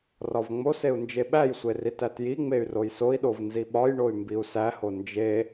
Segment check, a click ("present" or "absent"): absent